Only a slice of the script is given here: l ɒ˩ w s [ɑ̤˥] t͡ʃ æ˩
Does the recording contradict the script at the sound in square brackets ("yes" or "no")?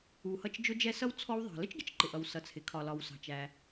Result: yes